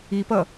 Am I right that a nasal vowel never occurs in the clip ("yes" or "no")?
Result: yes